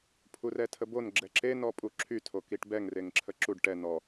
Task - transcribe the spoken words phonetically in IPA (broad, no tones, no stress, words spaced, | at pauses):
pʰurɛtʰəbon ɡ͡ǁɛǁe nɔpʼuǁʰy tʰokiʈbɛŋ reŋǁʰəǁuɖ ʈɛ nɔ